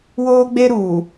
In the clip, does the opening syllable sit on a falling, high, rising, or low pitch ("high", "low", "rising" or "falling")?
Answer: high